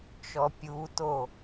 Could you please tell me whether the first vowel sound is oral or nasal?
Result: oral